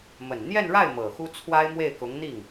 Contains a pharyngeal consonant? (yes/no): no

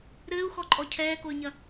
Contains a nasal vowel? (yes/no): no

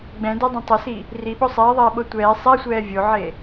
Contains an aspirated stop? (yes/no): no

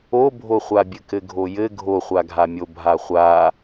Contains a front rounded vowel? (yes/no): no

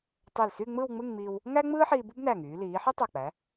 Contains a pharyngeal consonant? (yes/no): yes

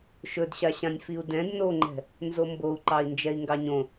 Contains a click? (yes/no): yes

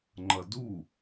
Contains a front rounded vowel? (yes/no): no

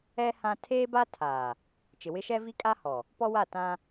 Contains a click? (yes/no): no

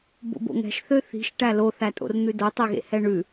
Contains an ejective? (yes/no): yes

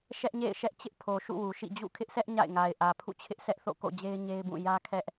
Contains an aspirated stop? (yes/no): yes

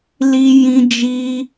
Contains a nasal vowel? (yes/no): yes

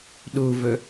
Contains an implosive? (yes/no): yes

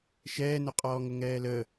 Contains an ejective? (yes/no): yes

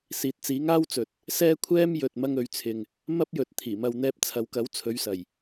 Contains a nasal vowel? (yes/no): no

